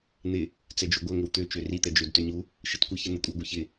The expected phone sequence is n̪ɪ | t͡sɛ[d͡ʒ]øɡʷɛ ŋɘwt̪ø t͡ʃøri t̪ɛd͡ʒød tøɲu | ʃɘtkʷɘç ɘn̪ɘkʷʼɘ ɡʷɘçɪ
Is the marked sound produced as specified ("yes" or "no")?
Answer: yes